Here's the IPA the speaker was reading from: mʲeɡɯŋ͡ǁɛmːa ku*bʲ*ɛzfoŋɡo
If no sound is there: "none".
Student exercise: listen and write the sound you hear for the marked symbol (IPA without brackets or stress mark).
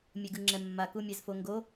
mʲ